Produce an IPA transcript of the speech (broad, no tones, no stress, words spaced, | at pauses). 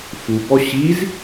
fubɔ ɕiz